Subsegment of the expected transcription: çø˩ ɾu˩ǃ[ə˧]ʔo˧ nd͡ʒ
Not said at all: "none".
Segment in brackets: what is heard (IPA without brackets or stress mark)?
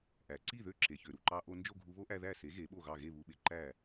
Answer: ɑ˧